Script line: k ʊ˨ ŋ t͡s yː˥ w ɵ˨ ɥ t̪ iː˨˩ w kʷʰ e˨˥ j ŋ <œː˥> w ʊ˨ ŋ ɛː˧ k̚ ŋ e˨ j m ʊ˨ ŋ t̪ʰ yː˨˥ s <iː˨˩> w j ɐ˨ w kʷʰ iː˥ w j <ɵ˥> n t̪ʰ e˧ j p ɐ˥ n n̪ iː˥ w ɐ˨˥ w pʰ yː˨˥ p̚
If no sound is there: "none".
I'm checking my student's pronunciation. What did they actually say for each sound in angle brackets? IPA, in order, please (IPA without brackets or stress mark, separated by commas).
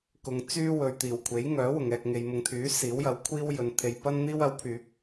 œː˨˥, iː˨˥, ɵ˨˧